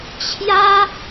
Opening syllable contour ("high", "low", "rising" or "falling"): high